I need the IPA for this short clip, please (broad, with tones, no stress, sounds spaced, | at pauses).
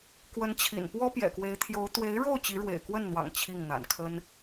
k w ə˧˥ n t͡ɕʰ ḭ˨˩ n p w ɔ˥ p j ɛ̰˨˩ k w e˧˥ ɪ̯ t̪ʰ j o˧˥ ʊ̯ t̪ w e˧˥ ɪ̯ ɻ o˥˩ ʊ̯ t͡ɕ i˧˥ ɻ w ḛ˨˩ ɪ̯ k w ə˥˩ n n̪ w ɑ̰˨˩ ŋ t͡ɕʰ i˥˩ ŋ n̪ a̰˨˩ n kʰ ə˥ n